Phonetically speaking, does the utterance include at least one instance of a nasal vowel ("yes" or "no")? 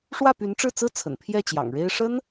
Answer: no